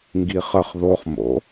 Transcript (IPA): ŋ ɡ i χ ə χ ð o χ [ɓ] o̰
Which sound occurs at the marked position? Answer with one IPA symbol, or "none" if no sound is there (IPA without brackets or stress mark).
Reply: m